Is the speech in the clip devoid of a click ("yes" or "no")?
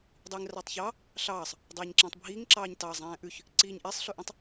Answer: no